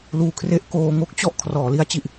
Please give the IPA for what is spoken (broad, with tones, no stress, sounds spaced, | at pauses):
l uː˧ kʰ r e˥˩ ʔ k oː˧ ŋ o˥˩ k̚ t͡ɕ ɔ˥˩ ʔ kʰ r ɔː˩˦ l i˦˥ a̯ t͡ɕ i˨˩ ʔ